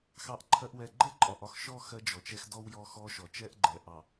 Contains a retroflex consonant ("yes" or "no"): no